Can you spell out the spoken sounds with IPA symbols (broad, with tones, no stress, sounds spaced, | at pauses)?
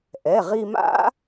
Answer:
ʔ ɛ˩˧˩ ʁ i˧ m a̰˦˥